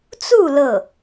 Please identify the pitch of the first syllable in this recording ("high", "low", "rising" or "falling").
falling